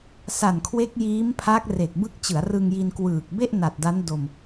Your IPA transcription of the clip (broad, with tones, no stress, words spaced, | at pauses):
sa˨˩nkʰwe˦˥k̚ jiː˦˥mpʰa˦˥k̚ re˨˩k̚ bɯ˦˥k̚t͡ɕɯ˩˦a̯ rɯ˧ŋji˧n kwɯː˨˩k̚be˥˩ʔna˨˩t̚ da˦˥ndo˧m